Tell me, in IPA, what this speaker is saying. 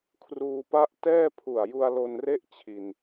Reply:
kʰ r uː˧ p a˥˩ ʔ t ɛː˥˩ pʰ u˨˩ a̯ j u˧ a̯ l o˧ n r e˥˩ ʔ t͡ɕʰ i˧ n

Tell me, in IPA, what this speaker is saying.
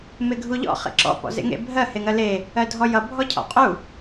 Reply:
m e ɡʱ u ʎ ɔ̰ χ ḛ ǁ ɔ̰ p ɔ̰ z ḛ ŋ ḛ bʱ ɜ h e ŋ ɜ l e | ɜ dʱ ɔ j ʌ bʱ ɔ cʰ ɔ̰ qʼ u

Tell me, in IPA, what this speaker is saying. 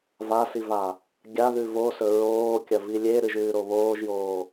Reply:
v a s i v a | ɡʲ a ð ʉ v o s ɵ ɹ oː kʲ ɐ v i lʲ e ɾ ɨ ʒ ʉː ɾ o β oː ʒ j oː

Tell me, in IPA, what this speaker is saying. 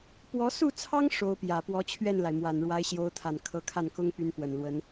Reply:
p w ɔ˧˥ s u˥˩ t͡sʰ ɑ˥ ŋ ʂ o˧˥ ʊ̯ p j ä˨˩ p w ɔ˧˥ t͡ɕʰ ɥ ɛ˥˩ n l a˩ ɪ̯ m w a˨˩ n ɻ w a˧˥ ɪ̯ ɕ j o˧˥ ʊ̯ t̪ʰ a˨˩ n kʰ ɤ˧˥ kʰ a˥˩ n k ʊ˥ ŋ p y˧˥ n p w ə˨˩ n l w ə˧˥ n

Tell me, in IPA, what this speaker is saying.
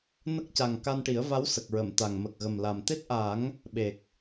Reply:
n ə˦˥ k̚ c a˨˩ ŋ k a˧ n ʈ i˨˩˦ ə̯ v a˧˥ w s ə˨˩ k̚ ɹ ə˨˩˨ m t̪ a˨˩ ŋ m ə˨˩ k̚ ɣ ə˨˩ m l a˨˩ m t̪ e˦˥ t̚ ʔ a˨˩˦ ŋ | ɓ e˨˩ k̚

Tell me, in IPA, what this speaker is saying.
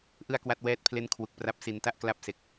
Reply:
ʔ ɯ˥˩ a̯ k w a˥˩ t̚ w ɛː˥˩ t̚ pʰ l e˥˩ n kʰ w u˨˩ k̚ p r a˦˥ p̚ s i˧ n t a˥˩ ʔ k l a˥˩ p̚ s e˨˩ k̚

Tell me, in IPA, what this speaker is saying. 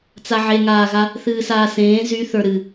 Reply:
t͡s a ʕ e ŋ aː ɣ a | θ ɨː s aː s ẽː z y θ ə˞ ɾ ɨ

